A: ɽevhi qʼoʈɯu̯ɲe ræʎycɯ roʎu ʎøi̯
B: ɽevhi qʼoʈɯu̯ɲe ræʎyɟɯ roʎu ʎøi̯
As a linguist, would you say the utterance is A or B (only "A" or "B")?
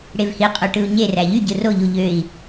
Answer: B